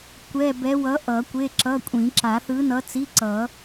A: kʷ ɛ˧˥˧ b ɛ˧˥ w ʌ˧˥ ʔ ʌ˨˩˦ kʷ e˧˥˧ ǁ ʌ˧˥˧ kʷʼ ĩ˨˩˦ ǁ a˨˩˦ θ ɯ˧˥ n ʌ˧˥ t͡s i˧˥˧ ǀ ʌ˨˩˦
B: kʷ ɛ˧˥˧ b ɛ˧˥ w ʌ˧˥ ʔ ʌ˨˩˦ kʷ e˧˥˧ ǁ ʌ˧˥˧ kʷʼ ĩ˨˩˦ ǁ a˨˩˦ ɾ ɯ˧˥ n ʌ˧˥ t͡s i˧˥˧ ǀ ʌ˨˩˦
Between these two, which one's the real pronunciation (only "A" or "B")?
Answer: A